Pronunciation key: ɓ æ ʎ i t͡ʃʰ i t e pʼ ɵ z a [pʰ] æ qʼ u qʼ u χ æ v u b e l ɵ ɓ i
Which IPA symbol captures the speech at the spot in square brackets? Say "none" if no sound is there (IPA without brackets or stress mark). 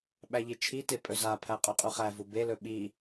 pʰ